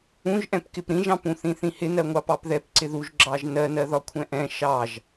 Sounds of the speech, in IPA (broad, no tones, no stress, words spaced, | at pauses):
ũʒʔɛ̃p kɪpɾĩʒɑ̃pũ θĩθĩhɪ nɜŋʷɑpɑpðɛp ǀɪðuʒ ɡ͡ǁɑʒnɜnɜ ðɒkʷʰɛ̃ʔɛ̃ ʃɑʒ